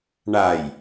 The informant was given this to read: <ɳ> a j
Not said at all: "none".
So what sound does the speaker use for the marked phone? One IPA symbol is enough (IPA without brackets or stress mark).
ɳ